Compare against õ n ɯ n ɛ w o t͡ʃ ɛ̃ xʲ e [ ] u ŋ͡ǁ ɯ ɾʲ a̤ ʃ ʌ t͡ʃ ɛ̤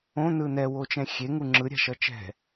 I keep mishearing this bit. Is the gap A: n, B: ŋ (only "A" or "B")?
B